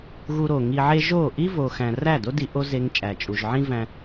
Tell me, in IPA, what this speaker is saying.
ɣ u˧ ɾ o˨ ŋ i˧ ʕ e˦ ʒ o˦˨ ʔ i˦ v o˨ x æ̃˨ r æ˦˨ d o˦ d i˧ ʔ o˦ z e˧ ŋ t͡ʃʼ æ˨ t͡ʃʼ u˨ ʒ ʕ ĩ˦ v æ̃˧

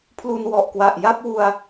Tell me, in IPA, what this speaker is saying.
pʰ l u˧ n w ɔ˨˩ ʔ k w a˨˩ ʔ j a˥˩ p̚ w u˧ a̯

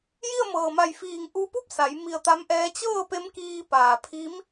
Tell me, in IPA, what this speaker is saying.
j i˥˨ ə̯ m ɤː˩ m a˧˩ j f iː˧˩ ŋ ʔ u˧ p u˥˨ p̚ s a˩˧ j m i˧˩ ə̯ t̪ a˧˥ m ʔ ɛː˧˥ t͡ɕ ɤː˥˨ p e˧˥ m k iː˧ p aː˩ pʰ i˧˥ m

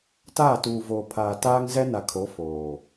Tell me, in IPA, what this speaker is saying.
t aː˦˨ t uː˨ v oː˨ pʰ aː˨ t aː˦ ŋ z ɛ˦ n a˨ kʰ o˨˦ f oː˨

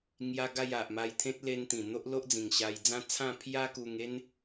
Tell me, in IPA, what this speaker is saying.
ŋ j a˧ ɡ a˥˧ j a˨ ʔ m a˧ j t̪ʰ ẽ˦ t̚ l e˧ n t̪ ĩ˨˩ n̪ o˦ ʔ l o˦ ʔ d͡z ĩ˨˩ ŋ ɕ a˧ j d͡z ã˦ t͡sʰ ã˥˧ pʰ j a˦ k u˧ ŋ e˦ n

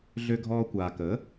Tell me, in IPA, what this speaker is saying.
ɮ ø˧ ɡʱ ɔː˧ kʷ aː˨ k ə˨˦

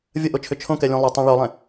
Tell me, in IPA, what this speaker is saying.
vʲ ɐ ʔ o t͡ʃʰ ʏ t͡ʃʰ õ k ɛ lʲ ũ lˠ ɛ tˤ ɛ̃ ɭ o lˠ ɛ̃

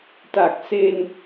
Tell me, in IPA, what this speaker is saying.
t a˨˩ k̚ s e˧ n

